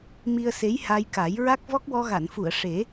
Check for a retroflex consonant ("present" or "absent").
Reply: present